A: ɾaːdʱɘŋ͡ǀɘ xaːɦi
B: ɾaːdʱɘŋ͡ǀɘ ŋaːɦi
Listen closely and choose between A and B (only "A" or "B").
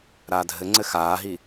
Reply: A